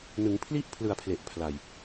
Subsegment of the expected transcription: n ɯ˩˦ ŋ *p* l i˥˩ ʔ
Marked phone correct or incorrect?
incorrect